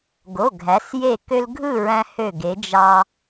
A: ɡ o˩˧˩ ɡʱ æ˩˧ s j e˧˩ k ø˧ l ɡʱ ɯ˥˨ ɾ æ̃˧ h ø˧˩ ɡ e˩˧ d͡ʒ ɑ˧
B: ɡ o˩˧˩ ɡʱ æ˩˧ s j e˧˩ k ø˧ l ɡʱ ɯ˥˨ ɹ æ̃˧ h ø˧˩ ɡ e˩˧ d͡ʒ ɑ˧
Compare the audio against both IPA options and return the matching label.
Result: B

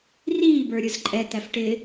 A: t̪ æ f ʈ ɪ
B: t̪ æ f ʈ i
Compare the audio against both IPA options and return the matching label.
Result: A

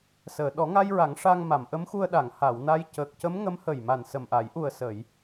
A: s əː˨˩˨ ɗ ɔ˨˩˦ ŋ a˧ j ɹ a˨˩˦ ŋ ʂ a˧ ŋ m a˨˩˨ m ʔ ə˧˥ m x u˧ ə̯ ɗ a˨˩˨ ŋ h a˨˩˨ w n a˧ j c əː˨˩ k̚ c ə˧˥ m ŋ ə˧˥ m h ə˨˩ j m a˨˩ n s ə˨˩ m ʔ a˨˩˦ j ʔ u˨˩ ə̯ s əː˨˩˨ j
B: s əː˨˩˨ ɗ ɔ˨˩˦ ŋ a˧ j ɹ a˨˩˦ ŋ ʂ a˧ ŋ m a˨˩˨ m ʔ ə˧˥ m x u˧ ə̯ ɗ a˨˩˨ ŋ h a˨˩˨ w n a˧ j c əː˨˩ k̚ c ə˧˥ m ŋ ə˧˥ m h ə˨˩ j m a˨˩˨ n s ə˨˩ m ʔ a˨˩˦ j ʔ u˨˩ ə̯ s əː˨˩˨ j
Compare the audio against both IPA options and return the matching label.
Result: A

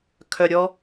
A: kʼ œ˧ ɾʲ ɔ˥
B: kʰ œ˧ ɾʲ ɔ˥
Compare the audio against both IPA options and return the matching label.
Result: B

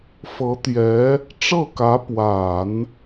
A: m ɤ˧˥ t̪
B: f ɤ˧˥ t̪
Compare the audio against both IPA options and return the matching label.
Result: B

